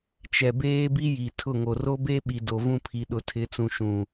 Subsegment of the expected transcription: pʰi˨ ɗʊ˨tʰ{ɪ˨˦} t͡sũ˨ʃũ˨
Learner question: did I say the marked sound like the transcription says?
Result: yes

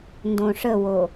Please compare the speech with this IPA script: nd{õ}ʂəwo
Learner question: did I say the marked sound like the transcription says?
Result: yes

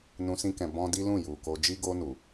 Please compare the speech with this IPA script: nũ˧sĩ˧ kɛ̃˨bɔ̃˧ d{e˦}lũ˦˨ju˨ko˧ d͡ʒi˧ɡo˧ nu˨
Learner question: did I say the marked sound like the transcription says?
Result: no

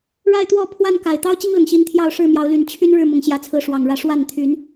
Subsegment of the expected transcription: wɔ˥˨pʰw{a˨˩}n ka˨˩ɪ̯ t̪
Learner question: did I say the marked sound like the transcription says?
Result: no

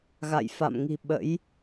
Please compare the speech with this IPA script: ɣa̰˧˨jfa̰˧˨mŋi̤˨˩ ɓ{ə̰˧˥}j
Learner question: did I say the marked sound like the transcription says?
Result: yes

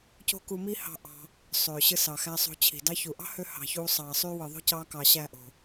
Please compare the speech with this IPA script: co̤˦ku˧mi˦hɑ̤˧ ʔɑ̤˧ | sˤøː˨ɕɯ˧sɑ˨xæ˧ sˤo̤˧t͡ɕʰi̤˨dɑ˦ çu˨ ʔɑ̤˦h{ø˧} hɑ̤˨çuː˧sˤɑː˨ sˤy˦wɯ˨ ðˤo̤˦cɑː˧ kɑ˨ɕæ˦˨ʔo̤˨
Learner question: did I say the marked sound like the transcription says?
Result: yes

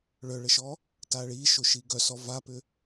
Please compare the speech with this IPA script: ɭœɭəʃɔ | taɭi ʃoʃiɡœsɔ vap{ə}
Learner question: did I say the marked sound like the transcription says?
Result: no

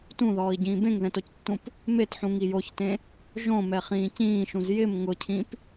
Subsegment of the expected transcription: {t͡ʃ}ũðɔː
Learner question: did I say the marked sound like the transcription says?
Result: no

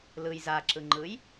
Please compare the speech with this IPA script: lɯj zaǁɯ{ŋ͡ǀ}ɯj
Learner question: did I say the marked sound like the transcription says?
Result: no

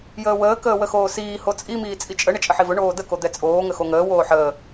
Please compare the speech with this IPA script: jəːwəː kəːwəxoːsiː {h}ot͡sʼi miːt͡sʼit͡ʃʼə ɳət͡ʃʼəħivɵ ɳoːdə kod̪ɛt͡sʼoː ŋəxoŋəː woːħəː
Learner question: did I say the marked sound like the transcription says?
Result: yes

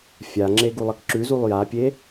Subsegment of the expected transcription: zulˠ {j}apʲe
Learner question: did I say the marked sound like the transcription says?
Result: yes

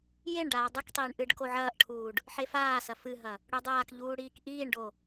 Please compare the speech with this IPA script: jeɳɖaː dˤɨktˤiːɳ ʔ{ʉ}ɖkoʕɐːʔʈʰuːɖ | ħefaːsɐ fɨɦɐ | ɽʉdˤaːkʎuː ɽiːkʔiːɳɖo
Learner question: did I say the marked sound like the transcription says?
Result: no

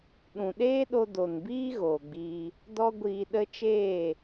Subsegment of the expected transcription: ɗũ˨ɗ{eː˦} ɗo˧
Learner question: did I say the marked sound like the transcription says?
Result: yes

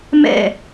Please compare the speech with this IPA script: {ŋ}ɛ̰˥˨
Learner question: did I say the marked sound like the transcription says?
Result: no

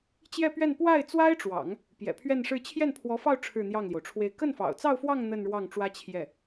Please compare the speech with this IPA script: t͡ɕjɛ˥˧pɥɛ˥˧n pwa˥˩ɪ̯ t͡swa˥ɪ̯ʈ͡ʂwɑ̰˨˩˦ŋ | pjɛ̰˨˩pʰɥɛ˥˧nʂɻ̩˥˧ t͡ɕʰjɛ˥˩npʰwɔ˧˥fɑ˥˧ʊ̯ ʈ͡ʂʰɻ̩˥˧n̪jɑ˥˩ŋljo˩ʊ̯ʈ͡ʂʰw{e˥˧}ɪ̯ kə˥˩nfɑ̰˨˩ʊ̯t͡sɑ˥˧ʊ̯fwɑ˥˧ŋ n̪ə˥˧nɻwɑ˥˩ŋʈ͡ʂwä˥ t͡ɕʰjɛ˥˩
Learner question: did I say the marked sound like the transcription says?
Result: yes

